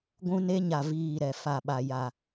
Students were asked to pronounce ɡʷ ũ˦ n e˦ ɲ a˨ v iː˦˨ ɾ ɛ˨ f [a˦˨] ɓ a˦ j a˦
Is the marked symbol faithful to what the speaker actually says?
yes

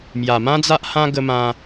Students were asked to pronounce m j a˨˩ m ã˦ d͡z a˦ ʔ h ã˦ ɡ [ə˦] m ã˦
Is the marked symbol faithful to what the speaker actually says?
yes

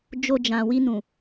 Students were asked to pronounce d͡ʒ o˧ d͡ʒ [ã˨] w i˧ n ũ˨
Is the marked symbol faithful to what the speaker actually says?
yes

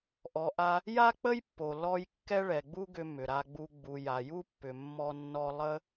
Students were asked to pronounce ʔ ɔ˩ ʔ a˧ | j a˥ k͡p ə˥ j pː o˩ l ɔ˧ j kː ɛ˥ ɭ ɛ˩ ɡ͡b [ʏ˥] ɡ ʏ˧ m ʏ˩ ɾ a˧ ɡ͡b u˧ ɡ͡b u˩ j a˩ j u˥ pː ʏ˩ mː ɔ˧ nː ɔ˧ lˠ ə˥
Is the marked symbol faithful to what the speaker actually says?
no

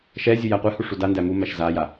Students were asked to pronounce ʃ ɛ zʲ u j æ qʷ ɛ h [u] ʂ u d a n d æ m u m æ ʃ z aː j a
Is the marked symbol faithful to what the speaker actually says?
yes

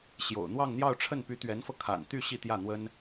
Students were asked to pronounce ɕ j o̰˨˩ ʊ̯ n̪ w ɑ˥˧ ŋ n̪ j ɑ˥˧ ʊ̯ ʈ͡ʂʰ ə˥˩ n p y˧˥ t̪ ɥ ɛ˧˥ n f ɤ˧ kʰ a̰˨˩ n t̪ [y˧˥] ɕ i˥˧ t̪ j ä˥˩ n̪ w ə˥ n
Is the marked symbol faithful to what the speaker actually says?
no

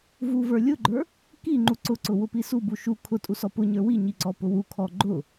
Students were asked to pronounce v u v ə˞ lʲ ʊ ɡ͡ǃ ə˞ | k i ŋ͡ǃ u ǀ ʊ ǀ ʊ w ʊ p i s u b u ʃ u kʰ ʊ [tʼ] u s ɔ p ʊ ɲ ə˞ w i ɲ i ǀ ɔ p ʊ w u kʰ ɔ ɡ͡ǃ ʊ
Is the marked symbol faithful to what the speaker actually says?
yes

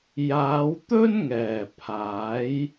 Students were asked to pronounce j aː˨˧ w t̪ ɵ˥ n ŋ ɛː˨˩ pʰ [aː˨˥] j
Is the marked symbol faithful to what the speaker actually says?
yes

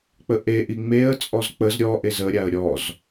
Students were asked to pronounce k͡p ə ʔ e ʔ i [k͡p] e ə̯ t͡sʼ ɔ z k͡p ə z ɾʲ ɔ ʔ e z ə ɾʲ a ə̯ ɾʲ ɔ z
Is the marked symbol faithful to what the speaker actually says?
no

